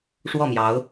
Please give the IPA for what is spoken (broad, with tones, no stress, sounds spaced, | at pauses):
ʂ w ɔ˥˩ m j ɑ˧˥ ʊ̯